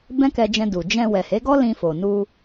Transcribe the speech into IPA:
b ɛ̃˦ k ɛ˧ d͡ʒ ɛ̃˧ d u˨ d͡ʒ ɛ̃˧ w ɛ˨ h e˨˦ ɡ ɔ˦ l ĩ˧ f o˨ n u˧

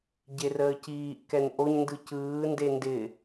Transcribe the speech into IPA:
ɟ e r əː c iː ʔ k ɛ n ʔ o ɲ n d ɯ c ɯː n d e n d ɪ

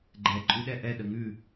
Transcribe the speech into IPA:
ɡ͡ǃ ɛ ǃʼ ʉ ɗ ɛ ʔ ɛ ɗ ə ŋ ʉ

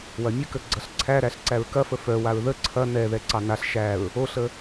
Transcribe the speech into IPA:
w ɐ mʲ ə k ə ɡ͡ǀ ɐ ɬ ǀʰ æ ɾ æ ɬ ǀ æ ɹ k ɐ f ə f œ w a ɹ ð ə ǀʰ ɐ n ɛ ð ɛ ǀ ɑ n a ɬ ʃ æ ɹ | o ɬ ə

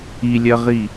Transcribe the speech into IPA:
i lʲ ɜ ʁ i

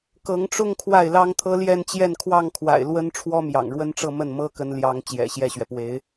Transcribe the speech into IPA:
k ɤ˧˥ ŋ ʈ͡ʂ ʊ˥˧ ŋ kʰ w a˥˩ ɪ̯ l ɑ˥ ŋ t̪ʰ ɤ˥ l j ɛ˥˧ n t͡ɕ j ɛ˥˧ n kʰ w ɑ˥˩ ŋ kʰ w a̰˨˩ ɪ̯ l w ə˥ n ʈ͡ʂʰ w ɔ˥ m j ɑ̰˨˩ ŋ ɻ w ə˥ n ʈ͡ʂ ɤ˥˧ m ə˥˩ n m ɤ˥ k ə˧˥ n l j ɑ˧˥ ŋ t͡ɕ j ɛ̰˨˩ ɕ j ɛ˥˩ ɕ ɥ ɛ˩ p w e˧˥ ɪ̯

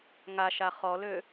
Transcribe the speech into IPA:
ŋ a ʃ a χ ɔ l ø

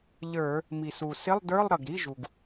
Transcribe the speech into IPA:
ʎ ə˞˧˩˧ | m i˩ s u˩ s ɪ˧˥˧ lˠ d ə˞˧˥˧ lˠ ɾ ʌ˩ ɡ ɾ i˧˥˧ ʒ u˩ ɡ

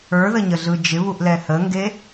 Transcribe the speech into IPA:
ə˞ ð ə ɲ ə ɮ ɯ d͡ʒ ɪ β u ʔ l ɛ h ə ŋ ɡ e

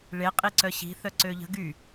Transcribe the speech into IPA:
ɭ e qʼ i ǀ œ ɕ i̤ θ œ ǀ ø ʎ ə̤ ɡ y

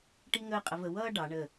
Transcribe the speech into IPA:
ʈ i˥ ŋ əː˥˧ qʼ ə˧ v ə˧ w ʌː˥ ɖ ɑ˩˧ ɳ ə˧˩

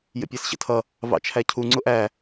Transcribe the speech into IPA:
j ə̰ pʲ æ s ɕ ə̰ tʰ ʌ | v ɑ̰ t͡ʃʰ æ cʰ u ŋ͡ǀ ʊ ʔ æ

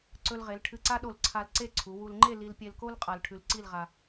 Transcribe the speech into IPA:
ǀ ɵ˧ l ʁ e˩˧ l ʈʰ ɨ˧ ǀ a˥ ɗ o˧˩ l ǀʰ a˧ l ǀ e˥˧ ǀʰ u˩˧ w u˧ l ŋ͡ǃ e˥˧ l i˧ l pʲ e˧ l k o˥ l qʼ a˧ l ʈʰ ʉ˧ l ǀ i˥˧ l ʁ a˧

